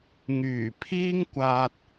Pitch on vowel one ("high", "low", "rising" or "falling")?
low